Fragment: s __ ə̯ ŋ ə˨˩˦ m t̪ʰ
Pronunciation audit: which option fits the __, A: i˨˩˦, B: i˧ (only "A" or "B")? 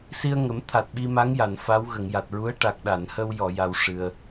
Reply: B